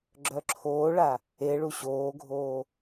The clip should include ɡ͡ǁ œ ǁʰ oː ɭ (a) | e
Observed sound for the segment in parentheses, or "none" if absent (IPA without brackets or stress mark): a